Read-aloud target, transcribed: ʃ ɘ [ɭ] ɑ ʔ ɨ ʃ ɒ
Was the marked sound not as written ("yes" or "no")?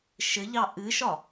yes